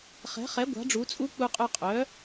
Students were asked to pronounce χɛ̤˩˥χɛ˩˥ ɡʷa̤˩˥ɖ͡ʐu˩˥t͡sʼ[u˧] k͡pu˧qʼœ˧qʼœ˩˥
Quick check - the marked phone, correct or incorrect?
incorrect